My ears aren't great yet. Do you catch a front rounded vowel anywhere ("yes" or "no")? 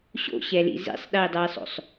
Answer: no